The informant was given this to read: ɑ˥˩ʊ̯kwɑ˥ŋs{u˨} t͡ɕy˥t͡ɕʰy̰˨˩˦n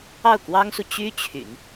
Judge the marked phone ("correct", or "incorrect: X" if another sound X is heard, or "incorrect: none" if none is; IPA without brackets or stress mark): correct